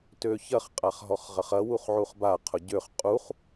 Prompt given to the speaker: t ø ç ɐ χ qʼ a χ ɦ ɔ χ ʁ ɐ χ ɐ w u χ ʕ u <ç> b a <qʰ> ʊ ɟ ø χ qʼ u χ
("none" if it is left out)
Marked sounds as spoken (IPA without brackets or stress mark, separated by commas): χ, qʰ